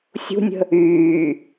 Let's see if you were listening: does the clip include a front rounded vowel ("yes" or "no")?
yes